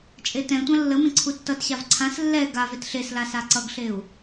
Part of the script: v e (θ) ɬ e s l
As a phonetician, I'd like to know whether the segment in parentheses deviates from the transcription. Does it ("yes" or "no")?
yes